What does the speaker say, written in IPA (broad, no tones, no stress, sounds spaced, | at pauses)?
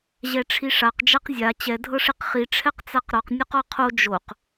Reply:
ʑ ɛ ʈ͡ʂʰ i ʂ a q d͡ʒ a q zʲ a t͡ɕ ɛ dʱ ɤ ʂ i q χ i ʈ͡ʂʰ ɛ q t͡s a q ɾ ɔ q nʲ ɔ q ɔ qʰ o d͡ʒ o q